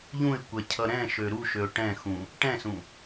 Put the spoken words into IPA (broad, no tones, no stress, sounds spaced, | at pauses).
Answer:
ʎ ũ ɪ̯ kʷ ɛ cʰ ʌ ɾ ɛ̃ ʃ ø ɾ u ʃ ø ʊ̯ ʈ ɛ̃ x ũ | ʈ ɛ̃ s ũ